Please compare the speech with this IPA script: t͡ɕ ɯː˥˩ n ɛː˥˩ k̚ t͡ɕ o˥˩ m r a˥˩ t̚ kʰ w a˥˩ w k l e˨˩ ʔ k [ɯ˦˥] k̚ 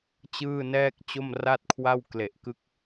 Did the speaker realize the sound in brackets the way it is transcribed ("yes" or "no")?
yes